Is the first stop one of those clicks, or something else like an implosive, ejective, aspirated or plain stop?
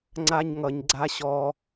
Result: click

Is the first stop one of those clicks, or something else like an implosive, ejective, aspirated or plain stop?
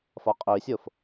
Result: ejective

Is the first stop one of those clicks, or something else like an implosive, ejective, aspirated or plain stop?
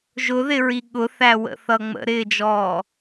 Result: implosive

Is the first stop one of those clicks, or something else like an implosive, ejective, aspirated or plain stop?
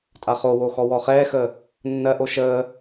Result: ejective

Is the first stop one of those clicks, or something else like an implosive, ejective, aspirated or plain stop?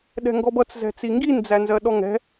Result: implosive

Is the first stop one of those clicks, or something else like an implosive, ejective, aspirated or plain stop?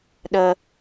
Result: implosive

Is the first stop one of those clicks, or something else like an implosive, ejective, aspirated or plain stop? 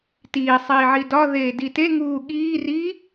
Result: plain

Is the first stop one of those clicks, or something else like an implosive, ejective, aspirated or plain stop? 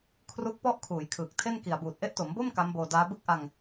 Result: aspirated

